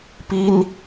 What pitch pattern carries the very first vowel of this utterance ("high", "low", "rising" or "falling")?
high